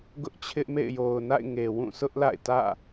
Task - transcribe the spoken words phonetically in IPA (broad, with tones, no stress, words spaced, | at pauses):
ɡʊ˦ʔt͡ɕʰɪ˦ʔmḛ˦˨ɪ̯ jo˨ʊ̯na̰˦˨ɪ̯ ŋe˨wũ˦˨sʊ˦ʔ la̰˦˨ɪ̯ tä̰˦˨